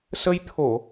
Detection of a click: absent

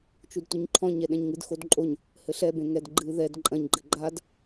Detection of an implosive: present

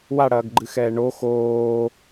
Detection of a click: present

